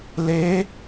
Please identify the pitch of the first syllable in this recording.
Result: rising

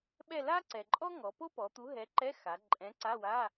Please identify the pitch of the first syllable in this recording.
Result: falling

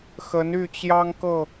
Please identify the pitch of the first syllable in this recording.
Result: rising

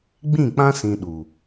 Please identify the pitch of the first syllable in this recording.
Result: falling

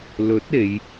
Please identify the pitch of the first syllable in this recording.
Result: rising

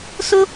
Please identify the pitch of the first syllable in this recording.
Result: high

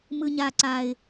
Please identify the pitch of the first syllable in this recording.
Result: high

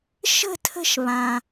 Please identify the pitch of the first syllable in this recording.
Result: high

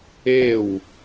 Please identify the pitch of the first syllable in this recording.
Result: falling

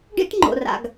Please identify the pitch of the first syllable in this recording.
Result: high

